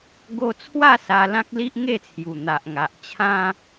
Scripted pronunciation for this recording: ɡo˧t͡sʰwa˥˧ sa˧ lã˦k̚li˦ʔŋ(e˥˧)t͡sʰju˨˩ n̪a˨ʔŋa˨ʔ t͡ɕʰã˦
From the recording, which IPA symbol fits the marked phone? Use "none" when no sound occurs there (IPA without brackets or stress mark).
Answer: e˥˧